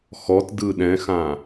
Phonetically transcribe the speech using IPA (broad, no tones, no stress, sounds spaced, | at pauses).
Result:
x ɔ t d ɯ ɗ ɛ̃ x ã